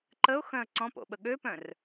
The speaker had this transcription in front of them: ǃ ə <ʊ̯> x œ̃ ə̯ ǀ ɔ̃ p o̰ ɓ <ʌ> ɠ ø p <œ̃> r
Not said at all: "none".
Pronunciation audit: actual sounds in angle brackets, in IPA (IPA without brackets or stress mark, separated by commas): ʊ̯, ə, œ̃